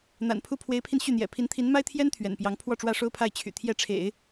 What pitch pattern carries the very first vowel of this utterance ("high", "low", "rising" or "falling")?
low